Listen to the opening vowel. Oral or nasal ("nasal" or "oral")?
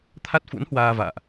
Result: oral